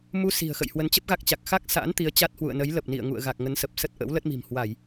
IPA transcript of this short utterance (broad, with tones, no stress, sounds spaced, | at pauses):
m u˧ s i̤˨˩ ə̯ x ə̰˧˨ j h w ə˨˦ n t͡ɕ ə˦˥ p̚ ɣ a˦˥ k̚ t͡ɕ a˨˩ k̚ x a˦˥ k̚ s a̰ː˧˥ n t̪ i˨˦ ə̯ t͡ɕ a˦˥ t̚ h w ṵ˧˨ ə̯ n ə˨˦ j l ə˨˩ p̚ n ḭ˧˨ ə̯ ŋ ṵ˧˨ ə̯ ɣ a˨˩ k̚ ŋ ə˨˦ n s ə˨˩ p̚ s ə˦˥ t̚ ʔ ə̰˧˥ w l ə˦˥ t̚ m i̤˨˩ m h w a˧˩˨ j